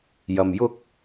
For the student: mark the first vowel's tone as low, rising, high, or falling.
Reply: low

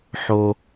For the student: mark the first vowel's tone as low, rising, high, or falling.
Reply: low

